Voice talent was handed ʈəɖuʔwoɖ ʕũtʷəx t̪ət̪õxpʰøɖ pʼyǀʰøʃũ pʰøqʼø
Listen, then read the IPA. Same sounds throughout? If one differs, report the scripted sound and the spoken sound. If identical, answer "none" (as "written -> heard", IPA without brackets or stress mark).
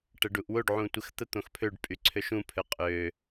none